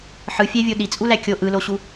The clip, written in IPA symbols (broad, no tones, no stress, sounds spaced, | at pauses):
ħ ɯ fʲ æ vʲ o ɗ i t͡sʼ u l æ kʲ o ʔ ɯ l o ɕ u